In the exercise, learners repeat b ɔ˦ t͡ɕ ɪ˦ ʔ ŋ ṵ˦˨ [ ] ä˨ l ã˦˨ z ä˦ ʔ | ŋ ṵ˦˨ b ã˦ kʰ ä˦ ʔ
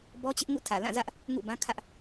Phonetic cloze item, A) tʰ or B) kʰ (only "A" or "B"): A